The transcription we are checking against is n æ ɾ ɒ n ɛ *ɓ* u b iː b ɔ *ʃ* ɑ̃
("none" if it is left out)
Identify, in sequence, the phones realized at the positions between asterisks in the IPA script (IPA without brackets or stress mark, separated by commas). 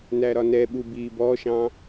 ɓ, ʃ